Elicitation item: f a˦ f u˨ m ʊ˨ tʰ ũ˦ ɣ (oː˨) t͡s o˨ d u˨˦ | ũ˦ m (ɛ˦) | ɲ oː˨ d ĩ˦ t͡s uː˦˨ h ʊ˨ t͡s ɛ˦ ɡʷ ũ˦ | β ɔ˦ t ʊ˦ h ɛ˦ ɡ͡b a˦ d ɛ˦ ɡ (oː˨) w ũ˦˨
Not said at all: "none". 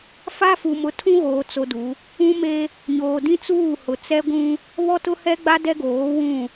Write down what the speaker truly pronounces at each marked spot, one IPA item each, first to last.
oː˨, e˦, oː˨˦

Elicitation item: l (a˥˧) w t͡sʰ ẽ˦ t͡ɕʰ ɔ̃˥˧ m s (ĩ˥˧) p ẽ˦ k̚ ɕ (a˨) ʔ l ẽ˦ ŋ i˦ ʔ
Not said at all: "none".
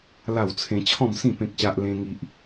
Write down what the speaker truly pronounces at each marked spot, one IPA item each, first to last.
a˥˧, ĩ˥˧, a˦

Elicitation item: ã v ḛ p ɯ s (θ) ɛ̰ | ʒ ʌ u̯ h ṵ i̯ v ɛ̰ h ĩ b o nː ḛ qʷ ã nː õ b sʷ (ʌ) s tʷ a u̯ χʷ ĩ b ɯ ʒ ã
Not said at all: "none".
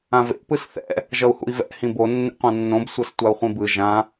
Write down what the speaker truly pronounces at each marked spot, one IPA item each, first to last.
θ, ʌ

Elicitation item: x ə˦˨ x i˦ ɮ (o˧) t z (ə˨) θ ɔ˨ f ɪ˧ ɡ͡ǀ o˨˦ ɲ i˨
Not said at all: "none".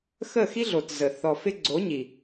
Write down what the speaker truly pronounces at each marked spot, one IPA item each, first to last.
o˨, ə˨

